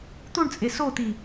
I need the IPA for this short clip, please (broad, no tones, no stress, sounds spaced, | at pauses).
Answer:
t̪ u ɳ t͡sʼ e s o t̪ i